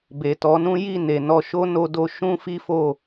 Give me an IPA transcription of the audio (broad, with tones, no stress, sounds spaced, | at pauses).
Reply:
b e˨ t ɔ˨˦ n ũ˦ j i˦˨ n e˨ n ɔ˧ ʃ o˦ n o˧ d o˧ ʃ ũ˦ f i˦ f o˦˨